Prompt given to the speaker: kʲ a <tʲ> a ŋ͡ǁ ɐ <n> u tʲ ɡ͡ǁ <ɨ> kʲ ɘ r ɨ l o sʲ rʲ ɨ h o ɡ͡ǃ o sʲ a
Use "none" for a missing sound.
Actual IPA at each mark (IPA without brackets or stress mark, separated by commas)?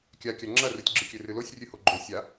kʲ, r, ɨ